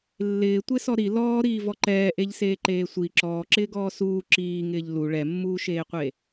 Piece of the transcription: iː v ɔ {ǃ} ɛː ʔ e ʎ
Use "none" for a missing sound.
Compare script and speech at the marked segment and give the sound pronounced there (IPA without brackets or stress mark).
ǃ